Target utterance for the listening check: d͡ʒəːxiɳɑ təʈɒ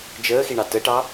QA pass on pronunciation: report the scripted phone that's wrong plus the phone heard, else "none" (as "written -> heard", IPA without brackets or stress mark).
ɒ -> ɑ